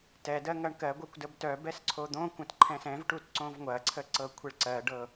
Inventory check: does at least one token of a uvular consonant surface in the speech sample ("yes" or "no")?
no